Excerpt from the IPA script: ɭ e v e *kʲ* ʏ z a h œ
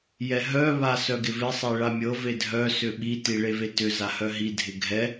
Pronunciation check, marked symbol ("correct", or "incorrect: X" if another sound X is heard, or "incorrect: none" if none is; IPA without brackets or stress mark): incorrect: t